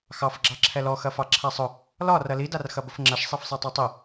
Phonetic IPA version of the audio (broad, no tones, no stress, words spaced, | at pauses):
xɑfɡ͡ǁɑ ǁʰɛlɔxɐfɑ ǁʰasˤʊ | lɒ rɐlidarxɐ bʊfŋ͡ǁɐʃ sˤɛfsˤɛtˤɑtˤi